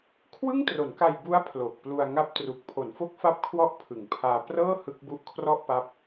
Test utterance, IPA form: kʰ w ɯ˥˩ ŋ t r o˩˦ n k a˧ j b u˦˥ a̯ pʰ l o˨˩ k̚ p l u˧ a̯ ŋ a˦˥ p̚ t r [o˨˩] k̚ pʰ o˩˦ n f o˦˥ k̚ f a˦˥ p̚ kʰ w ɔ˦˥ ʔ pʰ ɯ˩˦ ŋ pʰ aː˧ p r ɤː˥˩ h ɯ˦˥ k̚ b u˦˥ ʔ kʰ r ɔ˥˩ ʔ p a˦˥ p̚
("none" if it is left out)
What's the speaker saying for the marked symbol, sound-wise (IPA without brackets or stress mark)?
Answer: u˨˩